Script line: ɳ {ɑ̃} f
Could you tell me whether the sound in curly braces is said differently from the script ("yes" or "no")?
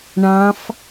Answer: no